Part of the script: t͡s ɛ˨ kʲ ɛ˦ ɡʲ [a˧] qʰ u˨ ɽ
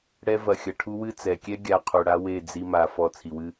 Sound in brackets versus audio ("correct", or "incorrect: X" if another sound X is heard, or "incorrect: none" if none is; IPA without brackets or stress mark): correct